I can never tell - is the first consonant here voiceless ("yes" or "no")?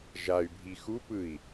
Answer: no